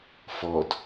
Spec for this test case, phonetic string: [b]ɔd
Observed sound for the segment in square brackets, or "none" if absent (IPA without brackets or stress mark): f